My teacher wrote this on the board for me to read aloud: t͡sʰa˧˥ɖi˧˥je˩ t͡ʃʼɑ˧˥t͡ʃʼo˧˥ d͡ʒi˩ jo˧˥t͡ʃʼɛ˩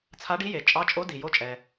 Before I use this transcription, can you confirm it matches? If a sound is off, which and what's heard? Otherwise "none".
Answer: d͡ʒ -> d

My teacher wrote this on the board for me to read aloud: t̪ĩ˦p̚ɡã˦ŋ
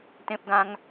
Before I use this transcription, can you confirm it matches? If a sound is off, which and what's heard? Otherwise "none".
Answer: ĩ˦ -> ẽ˦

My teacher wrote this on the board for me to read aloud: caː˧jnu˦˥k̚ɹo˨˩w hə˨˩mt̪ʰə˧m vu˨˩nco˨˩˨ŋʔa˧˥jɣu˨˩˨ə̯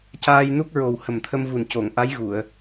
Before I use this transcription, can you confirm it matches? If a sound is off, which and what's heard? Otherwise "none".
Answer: none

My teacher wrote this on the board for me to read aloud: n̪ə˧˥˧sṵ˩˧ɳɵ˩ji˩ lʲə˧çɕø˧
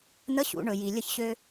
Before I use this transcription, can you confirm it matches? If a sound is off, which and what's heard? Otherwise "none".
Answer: s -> ɕ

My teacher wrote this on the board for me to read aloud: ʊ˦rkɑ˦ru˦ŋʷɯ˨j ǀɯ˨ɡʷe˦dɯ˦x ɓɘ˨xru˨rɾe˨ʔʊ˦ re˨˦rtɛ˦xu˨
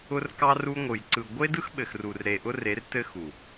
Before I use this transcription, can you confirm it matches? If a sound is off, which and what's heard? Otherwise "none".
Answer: ɛ˦ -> ɘ˦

